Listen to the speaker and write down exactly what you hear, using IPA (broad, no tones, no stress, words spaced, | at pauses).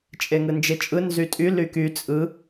t͡ʃʼeŋɯnd͡ʒet͡ʃʼɯ nzytʼy lyky t͡sʼɯ